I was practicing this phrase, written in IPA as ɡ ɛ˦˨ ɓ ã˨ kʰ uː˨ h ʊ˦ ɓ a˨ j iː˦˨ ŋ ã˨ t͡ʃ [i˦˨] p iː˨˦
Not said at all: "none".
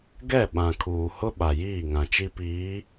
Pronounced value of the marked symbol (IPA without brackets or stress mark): i˦